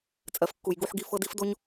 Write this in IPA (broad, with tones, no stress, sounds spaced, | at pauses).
t͡sʼ ɜ˨ f kː u˨ j ɡ u˦ ħ ɡ i˦ f ɤ˦ d i˦ f d o˦ ɲ